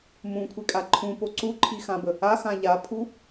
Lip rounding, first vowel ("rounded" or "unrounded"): rounded